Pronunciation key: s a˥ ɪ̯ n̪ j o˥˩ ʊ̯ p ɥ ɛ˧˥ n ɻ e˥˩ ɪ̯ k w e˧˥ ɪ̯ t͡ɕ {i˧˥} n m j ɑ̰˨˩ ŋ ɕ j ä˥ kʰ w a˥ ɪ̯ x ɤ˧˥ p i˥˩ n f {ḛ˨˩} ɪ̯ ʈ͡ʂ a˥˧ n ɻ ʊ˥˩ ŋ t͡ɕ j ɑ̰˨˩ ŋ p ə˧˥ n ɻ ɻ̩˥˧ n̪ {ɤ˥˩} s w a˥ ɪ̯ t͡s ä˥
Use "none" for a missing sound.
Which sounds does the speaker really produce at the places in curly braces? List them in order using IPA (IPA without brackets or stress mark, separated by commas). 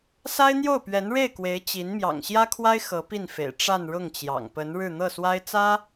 i˧˥, ḛ˨˩, ɤ˥˩